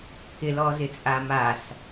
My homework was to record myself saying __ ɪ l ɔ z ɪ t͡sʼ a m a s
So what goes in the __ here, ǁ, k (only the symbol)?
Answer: k